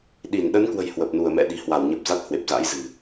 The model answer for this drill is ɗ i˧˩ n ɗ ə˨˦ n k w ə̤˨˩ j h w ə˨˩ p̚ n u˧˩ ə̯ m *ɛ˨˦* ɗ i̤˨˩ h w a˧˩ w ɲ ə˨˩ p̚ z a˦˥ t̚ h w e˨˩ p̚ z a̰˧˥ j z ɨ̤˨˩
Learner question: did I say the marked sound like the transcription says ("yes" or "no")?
no